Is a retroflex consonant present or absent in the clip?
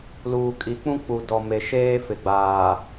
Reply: absent